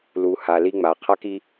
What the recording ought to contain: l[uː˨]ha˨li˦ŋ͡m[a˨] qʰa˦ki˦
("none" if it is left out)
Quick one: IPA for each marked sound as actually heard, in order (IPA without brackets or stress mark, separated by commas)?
u˨, a˨